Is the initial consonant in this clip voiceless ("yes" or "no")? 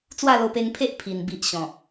yes